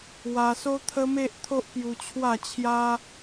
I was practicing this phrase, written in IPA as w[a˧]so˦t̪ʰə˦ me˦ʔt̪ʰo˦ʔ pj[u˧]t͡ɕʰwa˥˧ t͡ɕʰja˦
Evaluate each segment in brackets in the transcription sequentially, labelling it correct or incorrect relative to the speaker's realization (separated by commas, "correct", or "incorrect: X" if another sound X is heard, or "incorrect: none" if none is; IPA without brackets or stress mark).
correct, correct